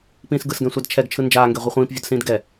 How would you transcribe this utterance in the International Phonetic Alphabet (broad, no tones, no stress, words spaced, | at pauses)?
pĩːsɡɯsɡɛ̃sʷad t͡ʃʰɛɡt͡ʃʰɯ nd͡ʒaːŋɡe ʁʷiχʷĩːpvʲodsĩːd ɡɛ